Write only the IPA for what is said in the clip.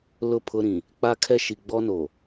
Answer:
lʊ˦˨pʰʊ˦ɾĩ˨ | k͡pa˦kʰɛ˦ ʃi˨ɡ͡bɔ˦no˨

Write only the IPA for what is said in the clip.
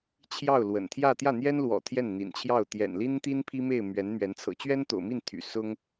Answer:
t͡ɕʰjɑ˥˩ʊ̯ lwə̰˨˩nt̪ʰjä˥˧ t̪jä˥˩n̪jɛ˥nlwɔ̰˨˩ t̪ʰjɛ˥˩nn̪ḭ˨˩nt͡ɕʰjɑ˥˩ʊ̯ t̪jɛ̰˨˩nli˥nt̪i˥n pʰi˥me˥˩ɪ̯ mɥɛ˧˥nmɥɛ˧˥n t͡sʰɤ̰˨˩t͡ɕɥɛ˥nt̪o̰˨˩ʊ̯mi˥˩n t̪ʰy̰˨˩sʊ˥ŋ

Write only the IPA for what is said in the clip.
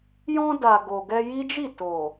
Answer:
jɔ̃˧da˨ ɡo˨ɡɛ˧ji˦d͡ʒi˦˨ to˨

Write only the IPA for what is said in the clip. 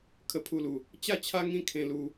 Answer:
kʰə˦pʰu˥˧lu˧ | t͡ɕa˥˧t͡ɕʰa˦ ŋĩ˦ kʰẽ˧lu˧

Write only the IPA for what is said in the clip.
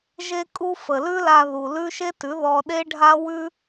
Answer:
ʒe˧kʼu˧ fə˨lʉ˦la˧ ðu˨lʉ˦ ʃe˦tʉ˨˦ ðɔ˧ɗe˦ ɖʱa˦wʉ˦

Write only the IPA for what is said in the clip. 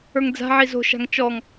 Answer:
ə˞ŋd͡za̤ʕi zo̤ʃa̤ŋ t͡ʃɔŋ

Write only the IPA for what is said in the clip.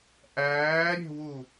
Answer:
ʔæːɾʲe̤wu

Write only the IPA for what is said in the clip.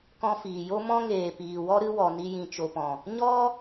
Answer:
kɔ̃˧ fiː˨ jo˦ mɔ̃˦ŋeː˨piː˨wɔ˦ ɾɨ˦wɔ˨ ni˧jĩ˨t͡ʃo˨pɔ̃˨ | ɲɔ˦

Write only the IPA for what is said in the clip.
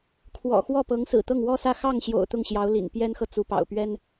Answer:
kʰwɔ̰˨˩xwɔ˥˩pɤ˧˥ŋ sɹ̩˨˩t̪ɤ˥˩ŋwɔ˥sä˥˧ xɑ˥˩ŋɕjo̰˨˩ʊ̯ t̪ʊ˥˩ŋɕjɑ˧˥ʊ̯lḭ˨˩n pjɛ˥nxɤ˨ t͡su˧˥pɑ̰˨˩ʊ̯pɥɛ˥n

